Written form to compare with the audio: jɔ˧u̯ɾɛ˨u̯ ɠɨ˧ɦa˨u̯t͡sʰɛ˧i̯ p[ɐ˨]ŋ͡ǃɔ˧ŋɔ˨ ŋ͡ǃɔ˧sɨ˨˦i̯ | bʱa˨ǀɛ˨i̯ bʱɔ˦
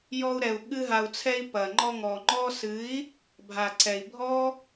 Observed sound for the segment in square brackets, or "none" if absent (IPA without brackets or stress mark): ɐ˨